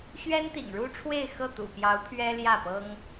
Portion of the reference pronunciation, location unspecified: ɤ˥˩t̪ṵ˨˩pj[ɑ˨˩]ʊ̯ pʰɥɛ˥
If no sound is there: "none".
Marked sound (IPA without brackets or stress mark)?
ɑ˧˥